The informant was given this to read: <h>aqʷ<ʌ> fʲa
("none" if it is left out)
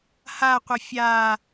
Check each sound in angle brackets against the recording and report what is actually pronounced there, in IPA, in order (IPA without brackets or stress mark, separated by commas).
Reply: h, ʌ